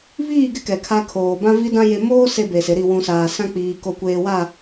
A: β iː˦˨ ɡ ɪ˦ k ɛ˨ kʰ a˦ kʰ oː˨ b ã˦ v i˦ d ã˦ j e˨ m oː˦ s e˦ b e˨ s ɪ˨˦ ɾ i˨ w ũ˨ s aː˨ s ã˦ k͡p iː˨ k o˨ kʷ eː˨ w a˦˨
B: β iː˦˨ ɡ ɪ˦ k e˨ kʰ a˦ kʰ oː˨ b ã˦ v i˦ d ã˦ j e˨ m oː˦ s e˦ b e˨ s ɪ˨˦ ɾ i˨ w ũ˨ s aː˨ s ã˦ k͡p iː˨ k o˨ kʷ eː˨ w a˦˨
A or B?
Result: A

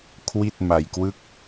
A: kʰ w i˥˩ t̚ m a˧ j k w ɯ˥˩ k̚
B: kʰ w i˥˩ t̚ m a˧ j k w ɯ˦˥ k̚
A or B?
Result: A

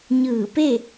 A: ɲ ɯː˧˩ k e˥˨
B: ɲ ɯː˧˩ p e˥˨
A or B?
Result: B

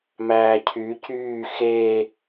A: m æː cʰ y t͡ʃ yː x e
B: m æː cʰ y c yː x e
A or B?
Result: B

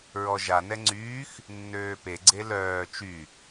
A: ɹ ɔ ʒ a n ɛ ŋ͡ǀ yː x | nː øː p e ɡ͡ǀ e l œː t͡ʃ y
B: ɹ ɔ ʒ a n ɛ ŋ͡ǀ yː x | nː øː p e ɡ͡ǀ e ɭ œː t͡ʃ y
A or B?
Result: A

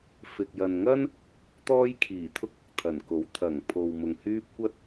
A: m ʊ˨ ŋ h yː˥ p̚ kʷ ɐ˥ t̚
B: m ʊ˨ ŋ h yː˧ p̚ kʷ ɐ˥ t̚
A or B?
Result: A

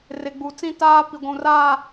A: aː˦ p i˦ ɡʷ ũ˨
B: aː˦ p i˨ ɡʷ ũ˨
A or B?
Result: B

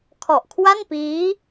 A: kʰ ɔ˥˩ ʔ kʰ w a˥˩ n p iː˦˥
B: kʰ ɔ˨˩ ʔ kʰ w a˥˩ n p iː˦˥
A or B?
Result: B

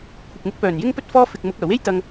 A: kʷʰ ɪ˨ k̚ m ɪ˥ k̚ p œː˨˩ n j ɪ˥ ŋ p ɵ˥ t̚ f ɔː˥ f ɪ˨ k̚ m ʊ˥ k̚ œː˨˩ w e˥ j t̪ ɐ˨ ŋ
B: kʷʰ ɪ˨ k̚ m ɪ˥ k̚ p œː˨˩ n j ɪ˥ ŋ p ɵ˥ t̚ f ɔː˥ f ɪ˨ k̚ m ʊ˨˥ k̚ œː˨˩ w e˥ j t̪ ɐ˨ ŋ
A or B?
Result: B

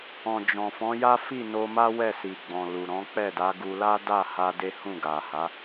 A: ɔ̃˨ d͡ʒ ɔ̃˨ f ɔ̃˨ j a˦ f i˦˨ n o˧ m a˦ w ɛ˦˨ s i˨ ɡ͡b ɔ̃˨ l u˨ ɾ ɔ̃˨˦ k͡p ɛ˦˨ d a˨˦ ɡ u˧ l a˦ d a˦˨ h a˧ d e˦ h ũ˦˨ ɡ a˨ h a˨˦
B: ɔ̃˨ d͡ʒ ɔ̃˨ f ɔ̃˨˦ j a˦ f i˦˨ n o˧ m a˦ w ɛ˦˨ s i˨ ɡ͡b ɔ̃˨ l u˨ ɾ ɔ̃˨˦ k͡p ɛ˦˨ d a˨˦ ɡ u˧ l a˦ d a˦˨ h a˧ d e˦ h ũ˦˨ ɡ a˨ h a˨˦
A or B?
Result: B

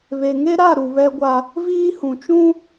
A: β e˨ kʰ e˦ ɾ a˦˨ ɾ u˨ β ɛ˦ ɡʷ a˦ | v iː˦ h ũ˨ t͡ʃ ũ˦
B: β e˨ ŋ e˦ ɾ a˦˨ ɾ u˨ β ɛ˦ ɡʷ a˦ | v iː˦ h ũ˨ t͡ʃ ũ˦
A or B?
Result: B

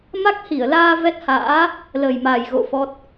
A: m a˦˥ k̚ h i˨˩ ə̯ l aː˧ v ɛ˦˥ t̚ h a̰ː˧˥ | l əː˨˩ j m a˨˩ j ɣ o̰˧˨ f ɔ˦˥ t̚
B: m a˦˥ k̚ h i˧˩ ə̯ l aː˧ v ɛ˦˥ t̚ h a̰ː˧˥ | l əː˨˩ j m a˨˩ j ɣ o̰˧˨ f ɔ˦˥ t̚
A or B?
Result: B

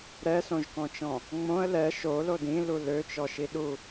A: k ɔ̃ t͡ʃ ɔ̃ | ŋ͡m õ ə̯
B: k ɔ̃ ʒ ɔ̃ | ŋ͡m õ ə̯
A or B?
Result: A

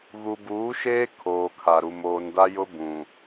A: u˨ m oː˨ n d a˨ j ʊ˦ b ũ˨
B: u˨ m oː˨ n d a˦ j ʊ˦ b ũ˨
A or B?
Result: B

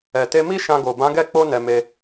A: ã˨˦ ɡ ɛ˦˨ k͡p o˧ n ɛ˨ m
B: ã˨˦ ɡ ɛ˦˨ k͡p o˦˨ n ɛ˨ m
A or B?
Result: A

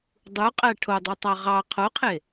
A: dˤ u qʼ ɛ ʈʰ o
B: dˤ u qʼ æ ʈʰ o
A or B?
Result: B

